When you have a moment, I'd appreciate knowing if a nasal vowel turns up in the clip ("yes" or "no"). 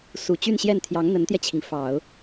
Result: no